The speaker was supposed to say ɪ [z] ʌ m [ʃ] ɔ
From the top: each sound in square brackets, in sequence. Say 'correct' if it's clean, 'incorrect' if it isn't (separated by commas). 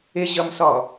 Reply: incorrect, incorrect